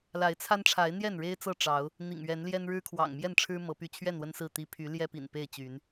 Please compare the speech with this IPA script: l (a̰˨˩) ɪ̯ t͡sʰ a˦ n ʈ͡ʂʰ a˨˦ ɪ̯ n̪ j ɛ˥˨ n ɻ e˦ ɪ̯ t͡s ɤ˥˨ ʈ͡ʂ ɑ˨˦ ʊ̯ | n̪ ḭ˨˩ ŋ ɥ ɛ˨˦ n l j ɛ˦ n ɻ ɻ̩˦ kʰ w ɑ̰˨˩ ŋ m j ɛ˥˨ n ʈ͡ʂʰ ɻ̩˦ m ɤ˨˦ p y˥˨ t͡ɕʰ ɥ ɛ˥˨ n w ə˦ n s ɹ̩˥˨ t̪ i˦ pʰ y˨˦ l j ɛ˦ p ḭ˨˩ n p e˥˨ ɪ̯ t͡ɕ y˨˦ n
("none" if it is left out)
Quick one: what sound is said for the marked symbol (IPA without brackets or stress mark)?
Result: a˨˦